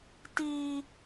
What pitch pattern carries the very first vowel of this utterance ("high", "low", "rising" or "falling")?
high